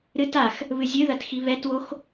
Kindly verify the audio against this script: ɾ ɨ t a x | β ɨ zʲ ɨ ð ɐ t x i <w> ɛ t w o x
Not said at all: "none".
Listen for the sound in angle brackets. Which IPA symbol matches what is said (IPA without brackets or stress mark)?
β